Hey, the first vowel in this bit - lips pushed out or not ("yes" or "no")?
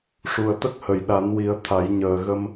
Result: yes